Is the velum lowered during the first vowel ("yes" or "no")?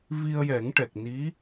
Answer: no